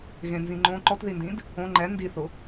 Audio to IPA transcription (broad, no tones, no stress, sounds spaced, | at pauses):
ɣ ẽ n z ĩ ŋ͡ǃ õ ǃ ɔ t ð i n d ĩ d | õ ŋ͡ǃ ɛ n d i θ ʊ